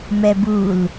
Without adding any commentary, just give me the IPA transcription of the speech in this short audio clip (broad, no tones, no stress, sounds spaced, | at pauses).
m ɛ b u l